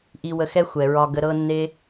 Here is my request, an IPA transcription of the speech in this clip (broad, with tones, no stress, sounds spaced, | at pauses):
ʔ i˧ w ə˧ x ɛ˦ xʷ ɛ˨ ɹ ɒ˧ ɡ ə˧ ɾ ɤ˦ nː e˦